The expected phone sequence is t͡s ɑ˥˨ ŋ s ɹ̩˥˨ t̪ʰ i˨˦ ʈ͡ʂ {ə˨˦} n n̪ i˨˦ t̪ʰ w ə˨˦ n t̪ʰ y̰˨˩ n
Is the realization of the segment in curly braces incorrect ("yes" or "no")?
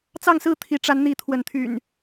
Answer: yes